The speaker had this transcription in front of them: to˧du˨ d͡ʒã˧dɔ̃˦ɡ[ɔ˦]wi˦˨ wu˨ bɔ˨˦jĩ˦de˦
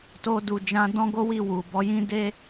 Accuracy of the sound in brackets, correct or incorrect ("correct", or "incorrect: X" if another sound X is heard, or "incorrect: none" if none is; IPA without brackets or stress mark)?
incorrect: o˦